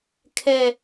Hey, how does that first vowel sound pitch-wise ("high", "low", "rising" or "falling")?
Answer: high